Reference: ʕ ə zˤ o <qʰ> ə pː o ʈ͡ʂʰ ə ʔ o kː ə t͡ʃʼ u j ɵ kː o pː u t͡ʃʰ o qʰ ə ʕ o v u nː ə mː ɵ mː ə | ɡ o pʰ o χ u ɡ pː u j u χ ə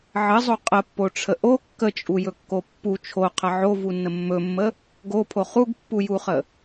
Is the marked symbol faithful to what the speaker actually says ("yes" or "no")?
no